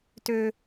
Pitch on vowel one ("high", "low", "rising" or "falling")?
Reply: high